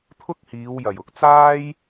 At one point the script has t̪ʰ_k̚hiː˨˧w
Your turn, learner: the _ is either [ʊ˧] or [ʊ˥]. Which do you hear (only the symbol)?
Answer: ʊ˥